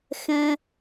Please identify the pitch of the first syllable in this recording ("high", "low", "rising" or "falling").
high